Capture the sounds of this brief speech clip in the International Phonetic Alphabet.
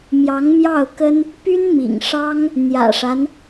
mjɑ˧˥ŋmjɑ˥˩ʊ̯kə˥n | py˥nmḭ˨˩ŋʂɑ˥ŋ | n̪jä̰˨˩ʂa˦n

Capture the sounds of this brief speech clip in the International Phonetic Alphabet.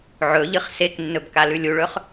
ʕɵʎɨχ seknːɵb kalʉlʲuɭɵχ

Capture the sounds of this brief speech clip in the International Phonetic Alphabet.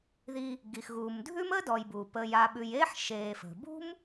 ði˨ | ɡi˩xɣuː˩mdʱʉ˦m əː˥dɔ˨jbuː˩ pəː˨j a˨ɓʉ˨j eː˦ħ ʃeː˨fə̤˩bṳ˥m

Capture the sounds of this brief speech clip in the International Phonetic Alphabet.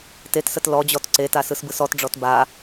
tetsət lɔd͡ʑɔt ǀetasɯsbɯs ɔtɖ͡ʐɔt ba

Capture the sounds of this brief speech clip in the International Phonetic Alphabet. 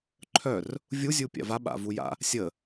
ǃʰœr | vʲu zʲupʲa̰va ɓa̰vuja̰ | sʲə

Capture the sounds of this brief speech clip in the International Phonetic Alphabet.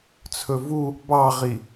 t͡sʰɵvu | bɑʁi

